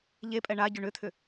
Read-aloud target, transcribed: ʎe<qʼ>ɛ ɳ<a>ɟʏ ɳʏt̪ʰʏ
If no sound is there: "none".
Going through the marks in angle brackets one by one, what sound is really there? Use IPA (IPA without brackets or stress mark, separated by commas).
pʼ, a